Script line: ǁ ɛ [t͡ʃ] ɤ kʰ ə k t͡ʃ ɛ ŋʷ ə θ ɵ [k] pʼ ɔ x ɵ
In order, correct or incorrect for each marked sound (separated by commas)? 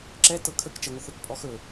incorrect, correct